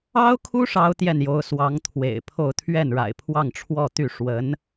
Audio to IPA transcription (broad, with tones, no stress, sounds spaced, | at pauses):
ɑ˥ ʊ̯ kʰ u˥ ʂ ɑ˥ ʊ̯ t̪ j ɛ˥˩ n j o˧˥ ʊ̯ s w ɑ˧˥ ŋ t̪ʰ w ḛ˨˩ ɪ̯ pʰ o˥˧ ʊ̯ t̪ʰ ɥ ɛ˥˩ n ɻ a̰˨˩ ɪ̯ pʰ w ɑ˥˧ ŋ ʈ͡ʂʰ w ɔ˥˧ t̪ y˥˩ ʂ w ə˧˥ n